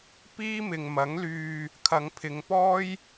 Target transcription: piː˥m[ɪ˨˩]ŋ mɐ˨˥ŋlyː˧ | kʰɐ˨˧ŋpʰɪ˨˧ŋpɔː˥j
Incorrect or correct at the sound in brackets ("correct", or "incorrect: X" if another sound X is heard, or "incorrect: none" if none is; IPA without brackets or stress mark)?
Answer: incorrect: ɪ˨